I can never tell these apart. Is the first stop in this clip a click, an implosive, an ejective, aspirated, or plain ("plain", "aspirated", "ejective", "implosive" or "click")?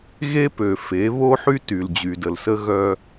plain